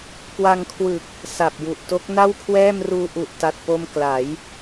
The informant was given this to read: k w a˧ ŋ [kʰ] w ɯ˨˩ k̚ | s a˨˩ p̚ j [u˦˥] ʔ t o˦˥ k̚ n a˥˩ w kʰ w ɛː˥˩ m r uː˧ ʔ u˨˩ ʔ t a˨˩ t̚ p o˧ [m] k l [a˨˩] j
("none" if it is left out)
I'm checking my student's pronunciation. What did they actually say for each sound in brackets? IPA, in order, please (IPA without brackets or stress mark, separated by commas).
kʰ, u˨˩, m, a˩˦